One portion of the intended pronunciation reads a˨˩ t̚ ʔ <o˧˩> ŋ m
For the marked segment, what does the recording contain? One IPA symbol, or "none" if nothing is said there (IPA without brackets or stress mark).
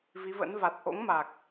o̰˧˥